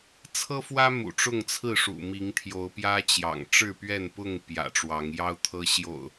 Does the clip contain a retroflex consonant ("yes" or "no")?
yes